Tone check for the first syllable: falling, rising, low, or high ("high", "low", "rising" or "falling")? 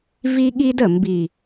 high